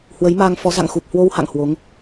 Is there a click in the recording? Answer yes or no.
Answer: no